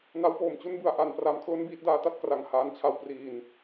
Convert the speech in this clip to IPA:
n a˦˥ w p oː˨˩ m t͡ɕ u˥˩ n b ɯ˩˦ a̯ ʔ a˧ n p r a˧ m kʰ l o˥˩ n b iː˥˩ t̚ d aː˦˥ t a˦˥ t̚ k r a˨˩ ŋ h aː˧ n t͡ɕʰ a˧ w p r iː˨˩ n

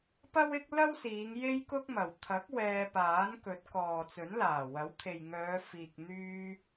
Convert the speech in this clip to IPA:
p ɐ˥ w ɪ˥ k̚ l ɐ˥ w s iː˨˧ ŋ j e˥ j k ʊ˥ k̚ m ɐ˨˩ w t̪ʰ ɐ˨˥ k̚ w ɛː˧ p aː˨˥ n k ɵ˨˥ t̚ k ɔː˨ t͡s ɵ˨˥ n l aː˨˩ w ɐ˨˥ w t̪ʰ e˨ j ŋ œː˨˧ f iː˨ k̚ n̪ yː˧

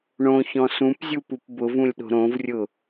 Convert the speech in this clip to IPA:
ɳ õ ç ɔ̃ s ũ p zʲ u p u p b ʊ v ũ lʲ ɗ o̤ ɾ õ v rʲ ʊ

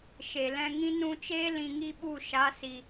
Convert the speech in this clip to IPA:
ʃ e˨ l ɛ̃˧ ŋ ĩ˦ n ũ˧ t͡ʃ eː˦ l ĩ˧ ŋ i˦ ɓ u˦˨ ʃ a˨˦ s i˨

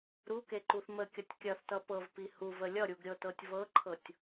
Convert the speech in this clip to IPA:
ɾ u k e ǃ u θ m ə kʲ ʌ tʲ kʲ ɐ θ t ʌ p ɤ v p i h u v ə lʲ ʌ ɾʲ u ɡ ɾʲ ɤ t ɤ tʲ v ɤ ǃʰ ɤ tʲ

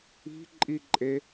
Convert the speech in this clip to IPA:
i̤ ǃʼ i ǃʼ e

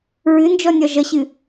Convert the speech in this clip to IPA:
ɹ ɨ n d͡ʒ ɔ nʲ ɒ ʒ ʌ ɕ ɨ

